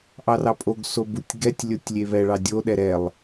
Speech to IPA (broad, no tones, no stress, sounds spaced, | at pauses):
ʔ ɑ r ɑ pʼ o ɡ s o b u tʲ ɡ ɛ tʲ lʲ o tʲ lʲ e β ɛ ɭ ɑ dʲ o ɗ ɛ ɾ ɛ lˠ